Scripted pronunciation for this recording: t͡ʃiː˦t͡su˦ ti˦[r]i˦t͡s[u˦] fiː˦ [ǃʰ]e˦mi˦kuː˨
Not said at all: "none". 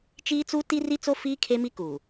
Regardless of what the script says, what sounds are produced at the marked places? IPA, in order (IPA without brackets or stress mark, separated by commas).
r, o˦, kʰ